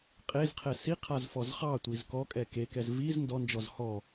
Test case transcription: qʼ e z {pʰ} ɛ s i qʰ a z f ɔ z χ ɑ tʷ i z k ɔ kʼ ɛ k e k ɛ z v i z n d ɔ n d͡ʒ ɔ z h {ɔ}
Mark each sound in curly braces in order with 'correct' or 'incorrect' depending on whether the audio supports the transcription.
incorrect, correct

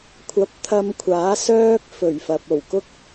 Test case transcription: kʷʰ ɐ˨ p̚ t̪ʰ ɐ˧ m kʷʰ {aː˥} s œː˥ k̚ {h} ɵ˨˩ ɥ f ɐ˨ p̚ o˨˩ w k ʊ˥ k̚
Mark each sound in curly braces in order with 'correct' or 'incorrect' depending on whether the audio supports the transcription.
incorrect, incorrect

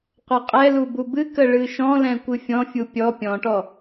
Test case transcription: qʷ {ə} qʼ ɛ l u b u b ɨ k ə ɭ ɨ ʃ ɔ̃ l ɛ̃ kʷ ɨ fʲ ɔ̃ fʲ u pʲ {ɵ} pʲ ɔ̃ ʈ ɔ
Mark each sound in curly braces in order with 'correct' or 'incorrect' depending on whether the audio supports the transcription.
incorrect, incorrect

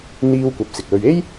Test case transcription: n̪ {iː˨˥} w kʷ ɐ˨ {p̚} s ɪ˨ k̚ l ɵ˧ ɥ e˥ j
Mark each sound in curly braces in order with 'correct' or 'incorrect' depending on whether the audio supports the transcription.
incorrect, correct

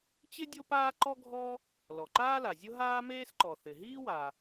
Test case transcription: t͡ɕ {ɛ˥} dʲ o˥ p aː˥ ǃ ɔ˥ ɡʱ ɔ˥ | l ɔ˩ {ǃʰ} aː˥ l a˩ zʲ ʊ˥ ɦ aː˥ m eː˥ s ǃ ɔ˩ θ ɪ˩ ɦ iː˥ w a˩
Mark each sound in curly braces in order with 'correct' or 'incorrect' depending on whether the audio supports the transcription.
incorrect, incorrect

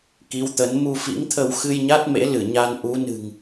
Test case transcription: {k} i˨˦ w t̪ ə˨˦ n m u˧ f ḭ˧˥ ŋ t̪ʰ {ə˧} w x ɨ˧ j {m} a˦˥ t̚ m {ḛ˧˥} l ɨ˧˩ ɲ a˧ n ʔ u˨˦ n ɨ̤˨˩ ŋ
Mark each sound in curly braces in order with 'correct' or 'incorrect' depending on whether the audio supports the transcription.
correct, correct, incorrect, correct

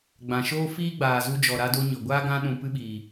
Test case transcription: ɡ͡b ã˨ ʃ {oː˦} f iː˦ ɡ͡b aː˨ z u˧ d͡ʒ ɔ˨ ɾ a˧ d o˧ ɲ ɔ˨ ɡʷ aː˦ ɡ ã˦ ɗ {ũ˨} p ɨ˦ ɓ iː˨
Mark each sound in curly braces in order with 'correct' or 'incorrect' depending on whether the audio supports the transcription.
correct, correct

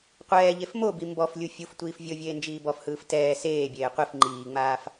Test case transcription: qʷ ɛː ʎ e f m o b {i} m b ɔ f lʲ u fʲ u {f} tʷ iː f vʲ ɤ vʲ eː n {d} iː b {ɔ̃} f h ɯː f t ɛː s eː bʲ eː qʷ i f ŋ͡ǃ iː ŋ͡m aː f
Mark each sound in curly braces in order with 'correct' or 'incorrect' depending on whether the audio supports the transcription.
correct, correct, incorrect, incorrect

